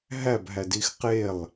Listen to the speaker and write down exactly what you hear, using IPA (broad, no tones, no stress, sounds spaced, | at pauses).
ɦ æ b ɦ æ d i x q e lˠ